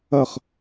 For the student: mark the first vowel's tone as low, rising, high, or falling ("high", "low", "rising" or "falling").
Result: falling